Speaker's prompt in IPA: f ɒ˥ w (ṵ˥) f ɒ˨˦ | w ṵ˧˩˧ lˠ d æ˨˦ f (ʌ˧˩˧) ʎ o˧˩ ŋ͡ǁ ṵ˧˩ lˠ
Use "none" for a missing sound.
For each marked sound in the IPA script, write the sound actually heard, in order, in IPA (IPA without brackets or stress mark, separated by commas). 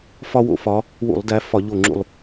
o̰˥, ɒ˧˩˧